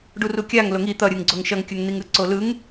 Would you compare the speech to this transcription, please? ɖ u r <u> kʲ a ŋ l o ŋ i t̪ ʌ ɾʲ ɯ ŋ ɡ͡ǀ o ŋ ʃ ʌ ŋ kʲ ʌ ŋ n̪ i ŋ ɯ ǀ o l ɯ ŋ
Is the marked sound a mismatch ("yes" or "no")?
no